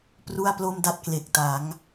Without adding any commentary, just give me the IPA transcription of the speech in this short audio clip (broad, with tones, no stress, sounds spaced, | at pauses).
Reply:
p r u˥˩ a̯ p l o˥˩ m d a˥˩ t̚ k l e˨˩ k̚ t a˩˦ ŋ